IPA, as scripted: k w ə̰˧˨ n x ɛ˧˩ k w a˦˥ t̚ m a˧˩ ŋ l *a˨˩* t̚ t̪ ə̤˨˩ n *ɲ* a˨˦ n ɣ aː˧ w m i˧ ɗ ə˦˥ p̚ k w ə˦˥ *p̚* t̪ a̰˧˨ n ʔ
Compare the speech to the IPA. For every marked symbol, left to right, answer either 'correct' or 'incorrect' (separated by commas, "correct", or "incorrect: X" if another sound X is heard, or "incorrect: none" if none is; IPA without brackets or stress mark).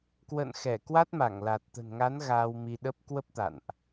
correct, incorrect: ŋ, correct